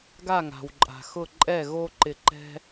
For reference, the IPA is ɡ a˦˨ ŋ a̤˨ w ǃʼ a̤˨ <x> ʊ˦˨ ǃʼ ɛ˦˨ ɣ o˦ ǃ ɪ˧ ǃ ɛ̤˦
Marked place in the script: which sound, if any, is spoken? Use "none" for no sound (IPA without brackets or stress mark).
x